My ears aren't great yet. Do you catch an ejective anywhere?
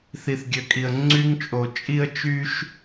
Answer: yes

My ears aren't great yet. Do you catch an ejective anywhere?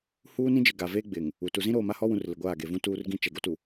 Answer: no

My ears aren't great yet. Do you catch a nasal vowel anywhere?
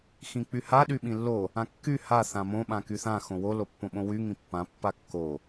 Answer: yes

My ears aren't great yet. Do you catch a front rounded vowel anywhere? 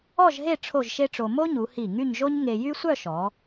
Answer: yes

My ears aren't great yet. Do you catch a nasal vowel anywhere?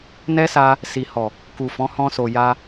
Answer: yes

